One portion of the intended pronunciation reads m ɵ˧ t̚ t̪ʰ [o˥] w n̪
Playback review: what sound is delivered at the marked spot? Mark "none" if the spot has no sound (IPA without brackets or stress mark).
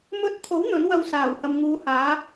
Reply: o˨˥